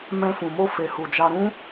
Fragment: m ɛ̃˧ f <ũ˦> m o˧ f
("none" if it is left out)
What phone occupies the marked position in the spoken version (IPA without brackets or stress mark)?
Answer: ũ˨